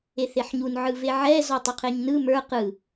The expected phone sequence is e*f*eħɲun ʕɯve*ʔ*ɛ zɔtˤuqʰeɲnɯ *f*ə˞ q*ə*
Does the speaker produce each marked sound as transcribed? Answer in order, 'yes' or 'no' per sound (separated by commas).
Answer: no, no, no, no